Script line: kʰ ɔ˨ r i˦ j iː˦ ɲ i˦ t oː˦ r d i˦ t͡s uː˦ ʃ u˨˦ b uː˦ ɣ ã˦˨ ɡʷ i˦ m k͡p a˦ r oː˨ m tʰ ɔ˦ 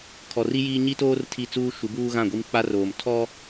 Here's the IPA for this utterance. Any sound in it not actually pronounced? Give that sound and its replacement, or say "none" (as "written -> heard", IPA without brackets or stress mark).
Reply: d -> tʰ